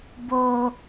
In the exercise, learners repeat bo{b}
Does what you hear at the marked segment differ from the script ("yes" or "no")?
yes